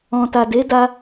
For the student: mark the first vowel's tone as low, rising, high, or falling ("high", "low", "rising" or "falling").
low